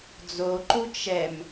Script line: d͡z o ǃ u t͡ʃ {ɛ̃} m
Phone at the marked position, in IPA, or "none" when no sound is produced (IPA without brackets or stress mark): ɛ